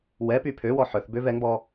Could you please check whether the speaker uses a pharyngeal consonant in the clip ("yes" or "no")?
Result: yes